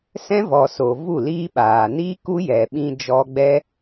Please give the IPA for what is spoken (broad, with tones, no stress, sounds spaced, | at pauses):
s ɛ̃˦ v ɔ˨ s o˨ v u˦˨ l iː˦ ɓ aː˨ n iː˦ k u˦ j ɛ˨ ɓ ĩ˧ d͡ʒ ɔ˧ ɡ͡b ɛ˦